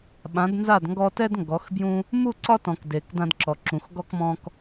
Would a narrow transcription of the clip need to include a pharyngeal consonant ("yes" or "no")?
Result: no